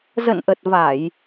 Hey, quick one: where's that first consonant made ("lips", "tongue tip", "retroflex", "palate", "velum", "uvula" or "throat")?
tongue tip